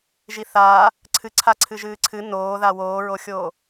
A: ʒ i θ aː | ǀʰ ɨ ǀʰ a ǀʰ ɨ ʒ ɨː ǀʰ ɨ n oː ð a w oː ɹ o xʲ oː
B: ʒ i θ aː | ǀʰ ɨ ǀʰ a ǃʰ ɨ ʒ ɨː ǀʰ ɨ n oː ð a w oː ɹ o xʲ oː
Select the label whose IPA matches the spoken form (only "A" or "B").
A